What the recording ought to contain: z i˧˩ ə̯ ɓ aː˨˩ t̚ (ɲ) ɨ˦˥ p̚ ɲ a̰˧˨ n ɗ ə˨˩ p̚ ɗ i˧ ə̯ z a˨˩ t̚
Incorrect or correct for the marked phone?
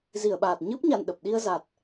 correct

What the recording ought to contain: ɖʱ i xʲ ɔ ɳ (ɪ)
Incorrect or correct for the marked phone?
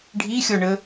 incorrect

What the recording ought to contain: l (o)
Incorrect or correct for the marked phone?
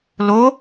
correct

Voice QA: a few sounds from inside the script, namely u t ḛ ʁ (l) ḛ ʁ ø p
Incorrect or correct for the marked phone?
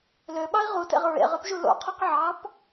incorrect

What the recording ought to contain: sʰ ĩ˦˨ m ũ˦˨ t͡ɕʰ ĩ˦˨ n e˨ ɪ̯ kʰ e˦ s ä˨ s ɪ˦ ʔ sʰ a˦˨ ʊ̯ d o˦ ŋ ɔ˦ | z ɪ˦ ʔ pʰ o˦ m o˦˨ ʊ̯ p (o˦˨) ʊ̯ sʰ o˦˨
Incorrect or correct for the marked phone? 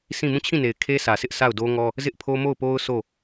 incorrect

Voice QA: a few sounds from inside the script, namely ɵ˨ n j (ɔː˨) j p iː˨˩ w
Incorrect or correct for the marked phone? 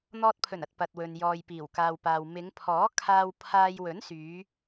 correct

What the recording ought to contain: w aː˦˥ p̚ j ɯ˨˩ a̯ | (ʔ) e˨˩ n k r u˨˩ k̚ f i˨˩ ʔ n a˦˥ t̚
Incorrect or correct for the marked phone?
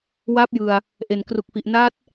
correct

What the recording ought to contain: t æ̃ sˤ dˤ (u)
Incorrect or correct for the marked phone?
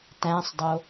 incorrect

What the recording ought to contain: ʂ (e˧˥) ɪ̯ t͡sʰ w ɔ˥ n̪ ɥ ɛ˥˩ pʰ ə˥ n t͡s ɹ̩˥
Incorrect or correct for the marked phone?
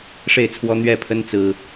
incorrect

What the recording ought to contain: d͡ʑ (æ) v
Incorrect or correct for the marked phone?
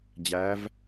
correct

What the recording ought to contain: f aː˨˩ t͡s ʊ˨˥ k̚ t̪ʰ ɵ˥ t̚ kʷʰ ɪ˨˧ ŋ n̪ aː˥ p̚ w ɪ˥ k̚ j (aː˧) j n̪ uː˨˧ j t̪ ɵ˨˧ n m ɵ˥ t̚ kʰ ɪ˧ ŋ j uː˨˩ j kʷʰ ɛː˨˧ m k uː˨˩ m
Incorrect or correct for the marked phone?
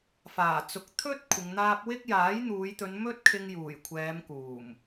incorrect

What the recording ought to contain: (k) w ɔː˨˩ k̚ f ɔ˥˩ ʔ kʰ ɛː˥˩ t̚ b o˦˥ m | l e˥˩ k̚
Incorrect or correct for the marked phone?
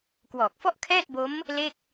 correct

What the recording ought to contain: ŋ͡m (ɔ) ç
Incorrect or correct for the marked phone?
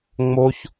incorrect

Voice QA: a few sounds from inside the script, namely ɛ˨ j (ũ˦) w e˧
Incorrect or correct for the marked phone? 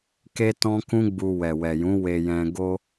incorrect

